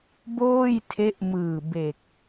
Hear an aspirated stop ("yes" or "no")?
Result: yes